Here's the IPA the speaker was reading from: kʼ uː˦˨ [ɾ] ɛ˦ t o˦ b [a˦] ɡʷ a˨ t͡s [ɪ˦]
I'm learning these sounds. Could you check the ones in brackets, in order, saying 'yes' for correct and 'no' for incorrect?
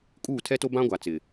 no, no, no

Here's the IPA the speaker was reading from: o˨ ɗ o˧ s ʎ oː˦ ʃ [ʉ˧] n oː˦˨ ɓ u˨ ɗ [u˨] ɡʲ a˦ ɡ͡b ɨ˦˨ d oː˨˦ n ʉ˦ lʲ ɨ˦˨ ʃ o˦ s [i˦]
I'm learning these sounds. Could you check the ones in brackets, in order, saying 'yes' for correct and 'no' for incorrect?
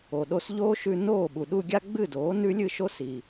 yes, no, no

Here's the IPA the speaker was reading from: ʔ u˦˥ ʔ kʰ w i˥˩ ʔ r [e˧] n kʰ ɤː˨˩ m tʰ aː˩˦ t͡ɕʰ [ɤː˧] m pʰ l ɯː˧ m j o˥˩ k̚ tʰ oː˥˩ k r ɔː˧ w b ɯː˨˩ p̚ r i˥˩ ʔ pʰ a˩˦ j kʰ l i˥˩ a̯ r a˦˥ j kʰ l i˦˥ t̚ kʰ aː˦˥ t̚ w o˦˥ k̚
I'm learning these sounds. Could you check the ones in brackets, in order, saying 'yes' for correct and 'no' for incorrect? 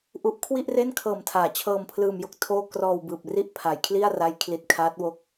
no, yes

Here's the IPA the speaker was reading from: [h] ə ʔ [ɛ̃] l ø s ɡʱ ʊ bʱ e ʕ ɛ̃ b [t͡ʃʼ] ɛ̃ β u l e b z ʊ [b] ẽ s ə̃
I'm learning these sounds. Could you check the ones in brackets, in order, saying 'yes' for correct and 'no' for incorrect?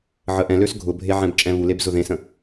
no, yes, yes, no

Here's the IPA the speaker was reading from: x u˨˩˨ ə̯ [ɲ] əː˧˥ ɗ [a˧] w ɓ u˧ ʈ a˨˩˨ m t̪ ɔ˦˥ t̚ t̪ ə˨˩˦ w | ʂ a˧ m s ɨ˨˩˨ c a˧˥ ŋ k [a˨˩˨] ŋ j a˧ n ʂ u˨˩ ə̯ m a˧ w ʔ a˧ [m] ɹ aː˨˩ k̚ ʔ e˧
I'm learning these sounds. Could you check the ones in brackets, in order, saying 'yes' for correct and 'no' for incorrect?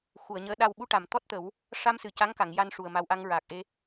yes, no, yes, no

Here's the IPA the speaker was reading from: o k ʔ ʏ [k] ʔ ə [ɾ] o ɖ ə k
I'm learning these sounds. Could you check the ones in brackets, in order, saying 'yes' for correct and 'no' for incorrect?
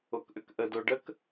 yes, no

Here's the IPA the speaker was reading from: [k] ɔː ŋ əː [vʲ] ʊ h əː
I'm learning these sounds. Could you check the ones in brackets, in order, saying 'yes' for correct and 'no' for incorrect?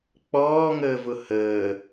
no, no

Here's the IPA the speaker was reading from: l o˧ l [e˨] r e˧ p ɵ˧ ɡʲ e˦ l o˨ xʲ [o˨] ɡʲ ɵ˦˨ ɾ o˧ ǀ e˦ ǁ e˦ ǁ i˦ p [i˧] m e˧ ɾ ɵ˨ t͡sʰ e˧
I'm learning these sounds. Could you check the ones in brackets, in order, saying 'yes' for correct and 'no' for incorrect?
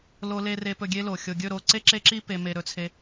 no, yes, no

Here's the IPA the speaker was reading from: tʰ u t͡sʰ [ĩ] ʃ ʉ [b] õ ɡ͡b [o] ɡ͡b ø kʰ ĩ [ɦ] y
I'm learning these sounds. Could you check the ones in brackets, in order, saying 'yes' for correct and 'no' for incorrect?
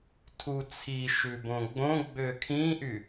no, yes, no, no

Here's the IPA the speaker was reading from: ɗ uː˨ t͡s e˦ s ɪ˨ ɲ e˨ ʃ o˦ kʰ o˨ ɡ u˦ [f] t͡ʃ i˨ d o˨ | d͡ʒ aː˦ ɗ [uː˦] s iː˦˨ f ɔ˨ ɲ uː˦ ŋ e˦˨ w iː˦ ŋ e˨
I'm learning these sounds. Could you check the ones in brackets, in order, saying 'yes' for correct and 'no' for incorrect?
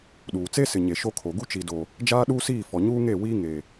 no, yes

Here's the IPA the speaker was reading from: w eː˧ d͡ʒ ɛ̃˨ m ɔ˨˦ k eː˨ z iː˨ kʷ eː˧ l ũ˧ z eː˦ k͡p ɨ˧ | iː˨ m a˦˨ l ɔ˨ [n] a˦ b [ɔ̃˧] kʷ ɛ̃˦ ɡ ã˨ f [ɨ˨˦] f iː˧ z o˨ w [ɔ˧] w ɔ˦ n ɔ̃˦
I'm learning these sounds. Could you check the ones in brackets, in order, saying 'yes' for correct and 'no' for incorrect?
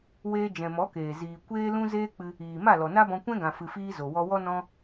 yes, yes, no, yes

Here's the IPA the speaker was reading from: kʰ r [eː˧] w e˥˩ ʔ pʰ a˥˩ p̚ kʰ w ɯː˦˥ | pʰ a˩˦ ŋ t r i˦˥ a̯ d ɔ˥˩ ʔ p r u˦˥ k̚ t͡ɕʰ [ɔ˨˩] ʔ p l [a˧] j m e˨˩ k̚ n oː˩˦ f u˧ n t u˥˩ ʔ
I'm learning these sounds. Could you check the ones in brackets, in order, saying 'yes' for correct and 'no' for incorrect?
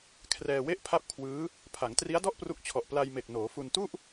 no, yes, yes

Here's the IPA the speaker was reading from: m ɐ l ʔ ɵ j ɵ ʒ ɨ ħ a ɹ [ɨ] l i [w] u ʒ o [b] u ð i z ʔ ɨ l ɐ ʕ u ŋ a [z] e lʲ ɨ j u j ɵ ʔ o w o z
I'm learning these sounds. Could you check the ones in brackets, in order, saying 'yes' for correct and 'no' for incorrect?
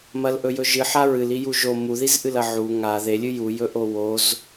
yes, no, no, no

